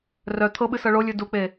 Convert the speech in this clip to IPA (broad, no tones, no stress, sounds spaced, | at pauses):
r œ t̪ʰ ɤ ɓ ɨ s ɤ ɭ o lʲ ɨ d u k͡p e